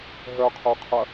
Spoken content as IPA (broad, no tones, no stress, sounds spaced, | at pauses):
ɦ œ qʰ œ qʰ ɐ